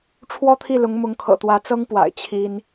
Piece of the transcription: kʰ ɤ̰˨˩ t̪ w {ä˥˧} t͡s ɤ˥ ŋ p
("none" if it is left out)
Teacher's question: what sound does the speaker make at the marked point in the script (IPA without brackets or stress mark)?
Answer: ä˧˥